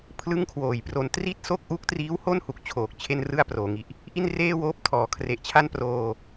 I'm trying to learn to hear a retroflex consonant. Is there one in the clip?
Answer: no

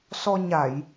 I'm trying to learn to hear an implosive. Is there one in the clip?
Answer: no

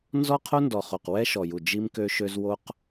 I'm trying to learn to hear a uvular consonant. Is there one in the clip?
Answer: yes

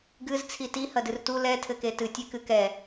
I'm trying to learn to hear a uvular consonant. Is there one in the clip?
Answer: no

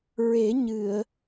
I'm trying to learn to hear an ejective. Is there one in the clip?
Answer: no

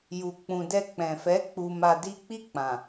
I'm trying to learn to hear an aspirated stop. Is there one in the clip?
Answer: no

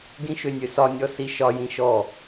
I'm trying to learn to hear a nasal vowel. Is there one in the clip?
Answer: yes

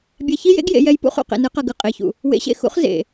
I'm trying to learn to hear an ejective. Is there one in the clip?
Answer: yes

